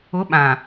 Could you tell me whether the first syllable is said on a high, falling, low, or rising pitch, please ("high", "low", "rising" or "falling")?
rising